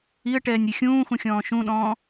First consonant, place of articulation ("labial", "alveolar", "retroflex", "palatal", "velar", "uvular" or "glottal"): retroflex